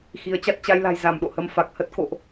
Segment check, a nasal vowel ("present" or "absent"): absent